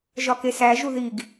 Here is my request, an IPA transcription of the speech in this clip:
ʒɒkesæ ʒuðiɡ

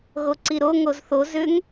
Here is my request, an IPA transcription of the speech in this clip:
ɣoǀiɾo ŋozθo zʏŋ

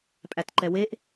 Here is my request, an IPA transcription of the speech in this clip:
pʼætǃɛweʔ

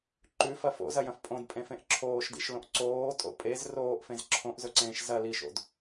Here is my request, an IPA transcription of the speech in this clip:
ǃʉfɐ fo̰zɐjɐ̃f pʼõdpʼẽfẽʔ ǁʰoːʃdḭʃlõʔ ǀoːtʼo̰ pʼez roːʔfẽz ǁʰõʔzɵǀẽːʃ zɐ liʃo̰d

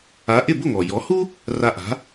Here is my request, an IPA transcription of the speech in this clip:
a˩˥ʔɪ˥˩ bʊ˥˩ŋɔ˩jɔ˩˥hu˥ | ra˧ʔa̤˩˥

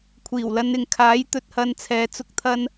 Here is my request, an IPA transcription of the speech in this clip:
kʷʰiː˨˩wlɐ˧nɪ˨ŋ kʰaː˨˥j t̪ɵ˨t̚hɐ˧nt͡sʰɛː˨˧ t͡sʊ˨˥k̚ t̪ʰɐ˧n

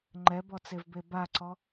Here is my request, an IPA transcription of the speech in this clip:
ŋ͡ǃɛbɔt͡sevbe baǀɔ

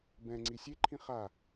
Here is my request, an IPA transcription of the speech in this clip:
bɛ̃ŋ͡ǀi sʲeǃʰĩ χa

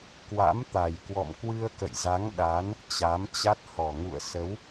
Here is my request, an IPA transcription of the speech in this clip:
kwa̰˧˥mt̪a˨˩j kwɔ̰˧˨mkwɨ˧ə̯kə̰˧˨jza˨˦ŋ ɗa˨˦n | t͡ɕa˨˦mt͡ɕa˦˥t̚ hɔ˨˩ŋṵ˧˨ə̯ sə˨˦w

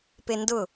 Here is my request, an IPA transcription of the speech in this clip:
pendʊ

